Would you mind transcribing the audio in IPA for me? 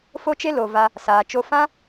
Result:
f o˦ t͡ʃ e˦ l o˨ v a˧ | s aː˨ t͡ʃ o˧ f ã˦

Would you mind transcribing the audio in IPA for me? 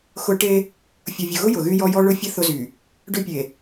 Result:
x ʊ˦ ʈ e˦ | fʲ ʊ˨ vʲ ʊ˨ ɣ ʊ˦ j ʊ˨ ɣ y˦ j ɔ˦ j ɔ˦ ɭ ʊ˦ fʲ ə˦ θ ʊ˦ z y˨ | ɖ ʏ˦ pʲ e˨

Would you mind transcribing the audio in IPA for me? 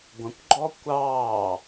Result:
ɡʷ ə̃ kʷ ɡ͡ǃ ɔ kʷ ɑː

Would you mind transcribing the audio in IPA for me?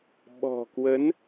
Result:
ɓ ɔ̤˨˩ k w ə˨˦ n

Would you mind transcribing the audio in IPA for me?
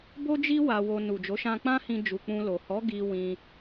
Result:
b o˦ d͡ʒ i˦ w a˧ w o˧ n u˨ d͡ʒ o˨˦ ʃ ã˧ k͡p ã˦ h ĩ˧ d͡ʒ u˨ k͡p ũ˧ l o˨ h ɔ˨˦ ɡ i˧ w ĩ˧

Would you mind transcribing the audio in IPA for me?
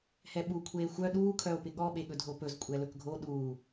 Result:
h ɛ ɓ u kʷʰ eː xʷ œ ɗ uː kʰ œ o̯ p ɪ ɠ ɔ ɓ e ɠ ɵ dʱ o p ɵ z kʷʼ ɛ l ɵ k ɡʱ o ɗ uː

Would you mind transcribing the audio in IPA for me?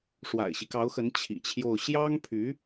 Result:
ʂ w a̰˨˩ ɪ̯ ɕ i˦ k ɑ˧˥ ʊ̯ x ə˧˥ n t͡ɕʰ ḭ˨˩ t͡ɕʰ j o˥˩ ʊ̯ ɕ j ɑ˥ ŋ pʰ y˧˥

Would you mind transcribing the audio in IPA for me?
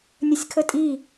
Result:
nʲ ə sʲ kʰ ə tʼ i

